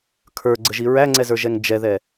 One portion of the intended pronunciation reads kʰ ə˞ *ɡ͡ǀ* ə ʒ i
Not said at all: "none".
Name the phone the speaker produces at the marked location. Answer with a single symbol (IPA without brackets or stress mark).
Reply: ɡ͡ǀ